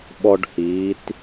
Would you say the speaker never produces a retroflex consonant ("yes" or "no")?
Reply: no